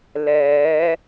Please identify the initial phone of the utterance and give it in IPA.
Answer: l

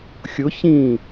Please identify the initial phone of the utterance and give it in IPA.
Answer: xʲ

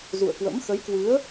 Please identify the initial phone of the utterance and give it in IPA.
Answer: z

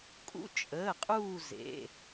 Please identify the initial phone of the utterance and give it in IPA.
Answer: kʼ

